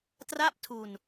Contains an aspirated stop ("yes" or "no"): yes